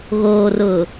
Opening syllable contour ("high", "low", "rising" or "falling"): low